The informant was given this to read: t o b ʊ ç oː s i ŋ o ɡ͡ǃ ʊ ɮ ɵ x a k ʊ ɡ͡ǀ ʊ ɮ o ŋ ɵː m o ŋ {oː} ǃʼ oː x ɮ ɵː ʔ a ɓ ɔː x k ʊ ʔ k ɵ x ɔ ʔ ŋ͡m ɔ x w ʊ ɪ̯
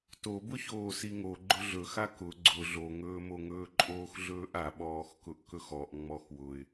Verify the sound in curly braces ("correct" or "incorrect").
incorrect